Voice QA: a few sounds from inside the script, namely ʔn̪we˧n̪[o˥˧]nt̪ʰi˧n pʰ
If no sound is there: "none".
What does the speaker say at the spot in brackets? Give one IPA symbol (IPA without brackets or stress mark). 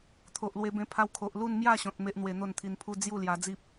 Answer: o˥˧